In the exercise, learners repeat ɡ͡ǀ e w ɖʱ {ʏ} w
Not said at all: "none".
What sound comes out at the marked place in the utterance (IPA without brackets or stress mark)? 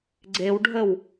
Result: ə